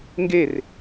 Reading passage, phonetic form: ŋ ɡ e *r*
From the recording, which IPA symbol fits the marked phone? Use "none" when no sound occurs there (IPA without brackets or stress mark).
r